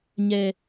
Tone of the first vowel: low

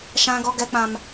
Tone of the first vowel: high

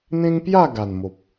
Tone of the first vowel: high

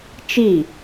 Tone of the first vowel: falling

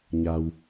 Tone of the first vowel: low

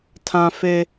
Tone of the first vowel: high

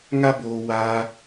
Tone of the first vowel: high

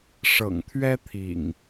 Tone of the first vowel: low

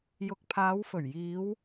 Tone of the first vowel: rising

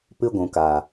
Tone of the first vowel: high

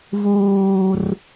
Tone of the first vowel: high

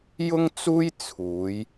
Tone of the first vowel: high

